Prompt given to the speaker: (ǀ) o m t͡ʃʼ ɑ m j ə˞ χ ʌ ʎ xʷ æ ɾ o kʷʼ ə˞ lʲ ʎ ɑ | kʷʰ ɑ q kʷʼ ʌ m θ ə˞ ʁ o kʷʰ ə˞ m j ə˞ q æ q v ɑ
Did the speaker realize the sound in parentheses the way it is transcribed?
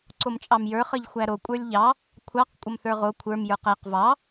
yes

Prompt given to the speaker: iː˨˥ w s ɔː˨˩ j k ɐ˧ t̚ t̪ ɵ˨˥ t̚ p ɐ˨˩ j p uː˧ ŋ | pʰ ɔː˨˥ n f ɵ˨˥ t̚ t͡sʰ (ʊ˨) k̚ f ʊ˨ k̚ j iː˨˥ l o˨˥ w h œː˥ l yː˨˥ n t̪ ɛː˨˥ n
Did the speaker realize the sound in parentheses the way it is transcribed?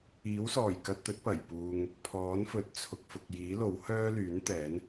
yes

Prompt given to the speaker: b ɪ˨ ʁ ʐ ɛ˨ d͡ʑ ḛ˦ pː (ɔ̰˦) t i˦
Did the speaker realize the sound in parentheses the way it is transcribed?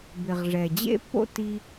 no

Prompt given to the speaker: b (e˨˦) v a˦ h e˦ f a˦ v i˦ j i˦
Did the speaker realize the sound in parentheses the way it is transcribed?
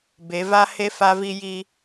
yes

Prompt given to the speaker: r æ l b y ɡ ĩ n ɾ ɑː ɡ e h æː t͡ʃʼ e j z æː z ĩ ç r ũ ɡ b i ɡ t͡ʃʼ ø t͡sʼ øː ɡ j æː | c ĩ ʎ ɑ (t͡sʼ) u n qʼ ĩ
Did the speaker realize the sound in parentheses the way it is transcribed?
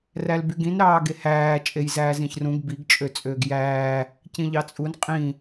yes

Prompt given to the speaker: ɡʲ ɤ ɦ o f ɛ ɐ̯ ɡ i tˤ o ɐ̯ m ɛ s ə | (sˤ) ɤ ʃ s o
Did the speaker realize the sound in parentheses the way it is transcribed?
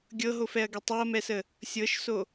no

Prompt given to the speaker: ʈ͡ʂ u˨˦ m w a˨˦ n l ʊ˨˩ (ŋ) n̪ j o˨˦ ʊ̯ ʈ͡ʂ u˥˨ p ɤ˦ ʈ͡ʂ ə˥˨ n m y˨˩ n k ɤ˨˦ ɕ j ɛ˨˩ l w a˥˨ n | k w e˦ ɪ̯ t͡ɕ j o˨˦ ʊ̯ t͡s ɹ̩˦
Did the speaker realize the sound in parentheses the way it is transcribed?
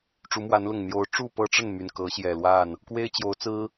yes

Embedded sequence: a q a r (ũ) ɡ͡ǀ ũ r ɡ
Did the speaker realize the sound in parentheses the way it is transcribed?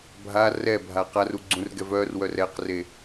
no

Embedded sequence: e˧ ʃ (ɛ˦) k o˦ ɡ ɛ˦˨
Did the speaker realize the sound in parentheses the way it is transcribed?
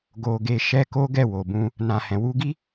yes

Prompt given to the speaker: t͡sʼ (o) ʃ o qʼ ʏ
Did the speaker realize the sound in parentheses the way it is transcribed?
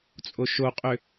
yes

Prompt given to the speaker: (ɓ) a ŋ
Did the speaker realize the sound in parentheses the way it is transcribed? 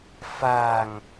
no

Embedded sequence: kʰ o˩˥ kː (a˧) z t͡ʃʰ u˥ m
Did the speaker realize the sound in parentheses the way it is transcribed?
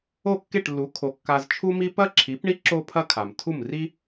yes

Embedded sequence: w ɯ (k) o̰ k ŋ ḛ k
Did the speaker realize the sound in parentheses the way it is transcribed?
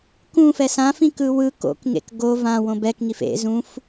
yes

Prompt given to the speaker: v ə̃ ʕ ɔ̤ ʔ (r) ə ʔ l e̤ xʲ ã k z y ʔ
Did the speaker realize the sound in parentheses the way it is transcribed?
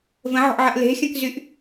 no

